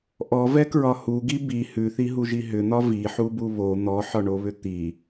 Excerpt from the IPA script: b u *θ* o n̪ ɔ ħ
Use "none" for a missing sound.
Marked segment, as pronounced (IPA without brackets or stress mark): β